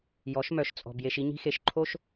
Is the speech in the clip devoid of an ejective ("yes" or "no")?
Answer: no